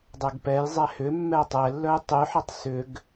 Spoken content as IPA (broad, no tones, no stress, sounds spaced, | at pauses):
dˤ ɛ ɡ p ɛ j zˤ ɛ h ʏ mː ɛ tˤ ɛ lː œ j tˤ y ħ ə tˤ s ʏ ɡ